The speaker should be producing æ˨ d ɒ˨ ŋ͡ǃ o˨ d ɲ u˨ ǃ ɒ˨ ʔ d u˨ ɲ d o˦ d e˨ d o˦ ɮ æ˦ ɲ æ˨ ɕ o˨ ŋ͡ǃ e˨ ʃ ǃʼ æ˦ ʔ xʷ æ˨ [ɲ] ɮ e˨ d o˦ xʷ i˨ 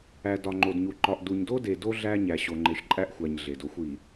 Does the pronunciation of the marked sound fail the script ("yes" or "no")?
no